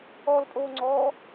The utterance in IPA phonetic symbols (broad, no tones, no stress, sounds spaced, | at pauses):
ɔ l pʼ oː ŋ͡ǀ ɔː